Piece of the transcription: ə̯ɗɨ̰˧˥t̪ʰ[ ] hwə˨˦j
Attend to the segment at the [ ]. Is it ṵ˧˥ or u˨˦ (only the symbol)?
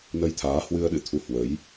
u˨˦